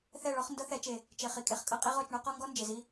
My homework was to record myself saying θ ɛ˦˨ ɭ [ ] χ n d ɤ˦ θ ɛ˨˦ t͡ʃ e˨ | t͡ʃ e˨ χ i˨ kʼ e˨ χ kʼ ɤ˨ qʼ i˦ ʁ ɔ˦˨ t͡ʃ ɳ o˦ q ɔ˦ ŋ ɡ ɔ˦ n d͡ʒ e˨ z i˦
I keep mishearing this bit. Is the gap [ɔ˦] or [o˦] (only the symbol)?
ɔ˦